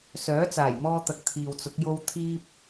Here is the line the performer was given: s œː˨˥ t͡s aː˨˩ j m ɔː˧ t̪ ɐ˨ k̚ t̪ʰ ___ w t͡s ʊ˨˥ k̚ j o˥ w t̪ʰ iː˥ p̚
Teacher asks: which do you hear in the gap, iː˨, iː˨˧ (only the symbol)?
iː˨